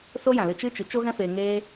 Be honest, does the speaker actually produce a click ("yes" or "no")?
no